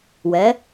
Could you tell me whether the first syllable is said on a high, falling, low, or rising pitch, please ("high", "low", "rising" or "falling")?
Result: rising